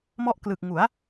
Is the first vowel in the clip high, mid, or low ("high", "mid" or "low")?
mid